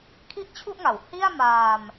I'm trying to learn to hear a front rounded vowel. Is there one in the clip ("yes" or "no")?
no